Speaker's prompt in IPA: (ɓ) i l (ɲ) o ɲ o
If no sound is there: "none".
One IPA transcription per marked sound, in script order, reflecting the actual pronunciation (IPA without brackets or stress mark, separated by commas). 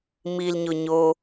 m, ɲ